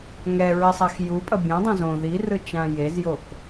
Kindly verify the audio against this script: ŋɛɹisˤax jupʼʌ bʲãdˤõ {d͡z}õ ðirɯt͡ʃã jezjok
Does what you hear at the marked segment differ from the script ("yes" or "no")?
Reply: yes